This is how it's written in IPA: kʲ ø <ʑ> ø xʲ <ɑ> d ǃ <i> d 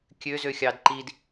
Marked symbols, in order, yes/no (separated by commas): no, yes, yes